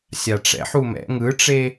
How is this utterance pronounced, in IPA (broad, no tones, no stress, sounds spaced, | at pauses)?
sʲ a ʈ͡ʂ ɛ̰ ħ u m ɛ̰ ŋ ɯ ʈ͡ʂ e